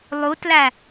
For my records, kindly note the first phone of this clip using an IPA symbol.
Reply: lˠ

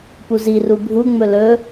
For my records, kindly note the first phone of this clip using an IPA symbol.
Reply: p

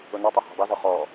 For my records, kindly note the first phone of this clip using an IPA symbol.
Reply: ʊ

